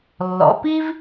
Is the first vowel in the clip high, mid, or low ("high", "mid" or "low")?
mid